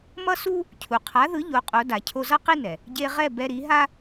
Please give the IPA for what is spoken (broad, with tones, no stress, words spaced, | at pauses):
mʌ˥su˥ | cʰu˩ qʰa˩˥ðɯ˩˥ ʎo˩˥qʼo˩˥ da˩cʰo˧zʌ˥ qi˥nɛ˩ | ɟe˧ʁɛ˥˩ bɛ˧ɾi˩˥ɦa˥